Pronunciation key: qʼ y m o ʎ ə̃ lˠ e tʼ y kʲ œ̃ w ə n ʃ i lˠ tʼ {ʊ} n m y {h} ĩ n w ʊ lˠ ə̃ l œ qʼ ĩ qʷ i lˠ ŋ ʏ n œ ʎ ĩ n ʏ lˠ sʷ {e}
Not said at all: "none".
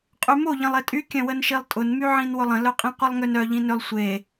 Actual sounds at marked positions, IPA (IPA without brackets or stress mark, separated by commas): ʊ, ʕ, e